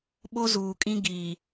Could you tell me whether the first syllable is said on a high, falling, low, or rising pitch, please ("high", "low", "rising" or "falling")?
high